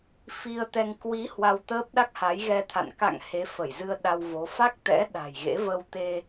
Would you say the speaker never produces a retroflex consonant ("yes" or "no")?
yes